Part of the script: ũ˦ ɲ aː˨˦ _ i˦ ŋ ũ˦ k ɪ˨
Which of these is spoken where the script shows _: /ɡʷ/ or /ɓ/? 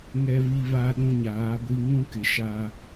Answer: ɡʷ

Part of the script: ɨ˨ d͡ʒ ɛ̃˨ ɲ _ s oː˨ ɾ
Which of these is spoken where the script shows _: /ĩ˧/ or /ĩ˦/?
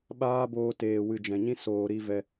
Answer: ĩ˦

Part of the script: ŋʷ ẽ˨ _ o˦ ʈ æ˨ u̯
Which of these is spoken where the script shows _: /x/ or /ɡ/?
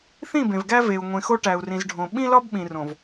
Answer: x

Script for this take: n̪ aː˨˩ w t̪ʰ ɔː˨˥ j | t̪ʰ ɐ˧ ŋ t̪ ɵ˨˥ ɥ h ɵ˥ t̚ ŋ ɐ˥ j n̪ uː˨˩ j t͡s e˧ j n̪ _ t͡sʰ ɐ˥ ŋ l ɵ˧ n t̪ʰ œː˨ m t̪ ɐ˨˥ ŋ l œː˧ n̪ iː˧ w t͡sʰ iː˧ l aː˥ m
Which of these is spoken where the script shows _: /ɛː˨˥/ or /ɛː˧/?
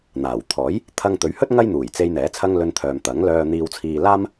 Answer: ɛː˨˥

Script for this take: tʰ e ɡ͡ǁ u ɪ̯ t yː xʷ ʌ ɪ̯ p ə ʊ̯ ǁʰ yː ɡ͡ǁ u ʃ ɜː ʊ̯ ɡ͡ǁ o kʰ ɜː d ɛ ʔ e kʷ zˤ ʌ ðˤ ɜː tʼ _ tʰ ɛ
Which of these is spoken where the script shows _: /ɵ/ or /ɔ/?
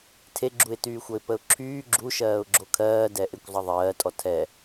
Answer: ɔ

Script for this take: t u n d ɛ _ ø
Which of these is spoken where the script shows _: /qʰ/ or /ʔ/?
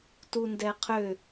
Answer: qʰ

